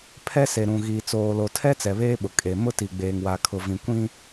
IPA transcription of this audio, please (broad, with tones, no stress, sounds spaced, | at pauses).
pʰ ɛ˦ s e˨ ɾ ũ˨ ɣ iː˨ t͡s oː˨ l o˨ tʰ ɛ˦ t͡s ɛ˨ β eː˦ ɓ ʊ˨ kʼ e˨ m ʊ˦ t i˨ ɡ͡b eː˨ ŋ w a˨ kʰ ʊ˨ v ĩ˨ kʷ ĩ˦